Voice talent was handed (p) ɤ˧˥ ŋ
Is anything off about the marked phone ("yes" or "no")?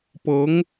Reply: no